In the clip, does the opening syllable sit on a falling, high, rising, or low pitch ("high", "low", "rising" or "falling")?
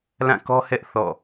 falling